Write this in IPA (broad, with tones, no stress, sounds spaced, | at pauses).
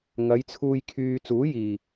ŋ ɐ˨˧ j t͡sʰ uː˧ j kʰ yː˧ t͡s uː˨˥ j iː˨˩